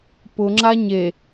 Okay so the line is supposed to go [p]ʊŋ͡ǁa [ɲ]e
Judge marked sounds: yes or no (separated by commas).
yes, yes